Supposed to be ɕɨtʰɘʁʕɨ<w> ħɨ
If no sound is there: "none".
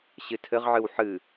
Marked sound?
w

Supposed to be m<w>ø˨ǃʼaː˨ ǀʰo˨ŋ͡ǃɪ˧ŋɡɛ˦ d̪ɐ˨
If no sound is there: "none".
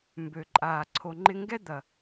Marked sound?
b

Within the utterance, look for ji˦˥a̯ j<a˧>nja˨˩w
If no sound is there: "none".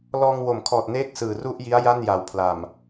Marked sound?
a˥˩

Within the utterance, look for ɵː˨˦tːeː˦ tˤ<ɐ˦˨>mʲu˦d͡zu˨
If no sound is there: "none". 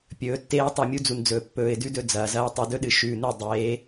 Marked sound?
ɐ˦˨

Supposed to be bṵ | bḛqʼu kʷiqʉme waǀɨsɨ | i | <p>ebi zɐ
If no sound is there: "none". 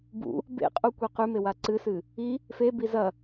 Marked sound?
f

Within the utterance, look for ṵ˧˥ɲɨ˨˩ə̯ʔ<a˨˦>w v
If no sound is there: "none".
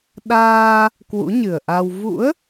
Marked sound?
a˧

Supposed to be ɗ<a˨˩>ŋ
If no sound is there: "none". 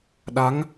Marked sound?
a˨˦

